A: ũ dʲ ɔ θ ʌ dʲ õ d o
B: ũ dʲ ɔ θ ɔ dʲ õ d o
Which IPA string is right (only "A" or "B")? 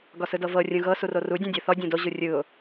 B